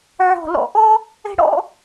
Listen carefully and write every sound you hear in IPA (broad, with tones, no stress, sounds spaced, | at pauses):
ʕ ɔ̤˧˩ l ɔ̰˧˩ ʔ ɔ˥ | ɛ̤˥ ɽ ɔ̰˥